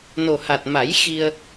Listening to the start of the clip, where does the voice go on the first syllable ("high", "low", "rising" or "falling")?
low